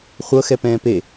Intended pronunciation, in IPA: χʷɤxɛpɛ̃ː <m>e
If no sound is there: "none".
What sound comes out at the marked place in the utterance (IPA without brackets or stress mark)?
p